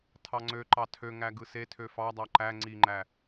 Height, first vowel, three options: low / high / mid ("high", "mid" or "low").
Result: low